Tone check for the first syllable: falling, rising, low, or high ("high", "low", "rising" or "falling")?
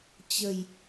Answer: low